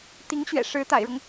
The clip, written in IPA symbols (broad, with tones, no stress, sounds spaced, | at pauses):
t̪ i˧˥ ŋ ɕ ɥ ɛ̰˨˩ ʂ ɻ̩˧˥ t̪ a̰˨˩ ɪ̯ ɻ ɤ˦ ŋ